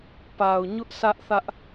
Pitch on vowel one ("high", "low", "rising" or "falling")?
low